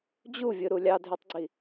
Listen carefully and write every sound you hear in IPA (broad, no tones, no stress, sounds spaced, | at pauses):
d͡ʑ u vʲ ɯ ɾ u lʲ ɑ dʱ y tˤ ɡ͡ǀ i